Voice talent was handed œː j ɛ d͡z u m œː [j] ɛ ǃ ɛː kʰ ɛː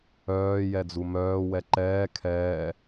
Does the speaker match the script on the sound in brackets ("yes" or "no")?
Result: no